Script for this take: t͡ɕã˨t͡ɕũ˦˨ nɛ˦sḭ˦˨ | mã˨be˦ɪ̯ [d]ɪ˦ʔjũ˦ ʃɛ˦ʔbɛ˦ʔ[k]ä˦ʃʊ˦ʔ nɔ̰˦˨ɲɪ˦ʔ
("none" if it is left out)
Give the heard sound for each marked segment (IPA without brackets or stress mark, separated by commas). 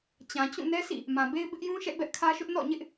b, kʰ